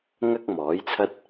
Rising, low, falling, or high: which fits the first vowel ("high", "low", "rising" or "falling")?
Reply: high